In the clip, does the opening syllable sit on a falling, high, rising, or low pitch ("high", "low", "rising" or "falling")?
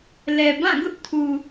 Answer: low